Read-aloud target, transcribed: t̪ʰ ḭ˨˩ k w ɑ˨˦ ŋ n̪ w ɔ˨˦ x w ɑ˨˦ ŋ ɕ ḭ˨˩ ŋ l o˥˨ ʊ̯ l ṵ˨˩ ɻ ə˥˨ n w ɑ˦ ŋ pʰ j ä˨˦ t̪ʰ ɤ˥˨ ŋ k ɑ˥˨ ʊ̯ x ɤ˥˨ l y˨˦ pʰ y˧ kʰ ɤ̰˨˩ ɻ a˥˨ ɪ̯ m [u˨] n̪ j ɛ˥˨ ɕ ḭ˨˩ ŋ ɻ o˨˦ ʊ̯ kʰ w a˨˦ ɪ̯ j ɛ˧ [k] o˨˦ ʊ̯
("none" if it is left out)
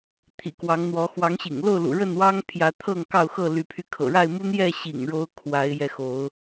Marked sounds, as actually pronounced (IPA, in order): u˦, x

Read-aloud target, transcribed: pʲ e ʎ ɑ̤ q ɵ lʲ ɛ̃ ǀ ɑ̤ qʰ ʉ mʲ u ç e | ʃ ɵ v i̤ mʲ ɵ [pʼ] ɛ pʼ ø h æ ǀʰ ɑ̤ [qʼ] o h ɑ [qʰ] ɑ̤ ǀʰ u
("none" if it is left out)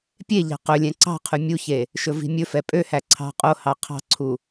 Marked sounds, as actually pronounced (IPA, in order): f, qʼ, qʰ

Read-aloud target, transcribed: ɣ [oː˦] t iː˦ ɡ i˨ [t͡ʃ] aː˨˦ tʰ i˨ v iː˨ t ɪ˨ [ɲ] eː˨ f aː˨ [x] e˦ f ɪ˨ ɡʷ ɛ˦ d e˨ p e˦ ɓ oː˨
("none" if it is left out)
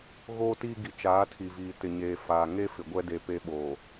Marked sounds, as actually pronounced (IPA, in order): oː˦, t͡ʃ, ɲ, ŋ

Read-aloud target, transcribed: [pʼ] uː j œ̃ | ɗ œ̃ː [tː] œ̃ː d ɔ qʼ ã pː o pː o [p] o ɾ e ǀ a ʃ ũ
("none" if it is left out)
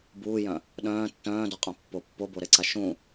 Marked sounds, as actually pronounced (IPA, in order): b, tː, b

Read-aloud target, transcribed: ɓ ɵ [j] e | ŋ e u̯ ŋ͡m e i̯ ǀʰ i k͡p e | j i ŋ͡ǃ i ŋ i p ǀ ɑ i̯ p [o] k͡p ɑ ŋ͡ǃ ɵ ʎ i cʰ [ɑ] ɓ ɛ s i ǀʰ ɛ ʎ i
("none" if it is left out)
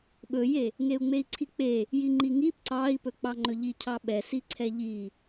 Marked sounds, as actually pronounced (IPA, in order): j, ɵ, ɑ

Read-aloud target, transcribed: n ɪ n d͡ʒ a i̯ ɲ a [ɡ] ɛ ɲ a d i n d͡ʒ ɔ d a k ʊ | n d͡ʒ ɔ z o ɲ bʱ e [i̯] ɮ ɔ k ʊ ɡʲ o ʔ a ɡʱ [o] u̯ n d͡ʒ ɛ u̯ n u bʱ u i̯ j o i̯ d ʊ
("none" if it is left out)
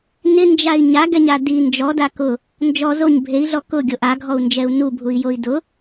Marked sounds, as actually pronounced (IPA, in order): ɡ, i̯, ɔ

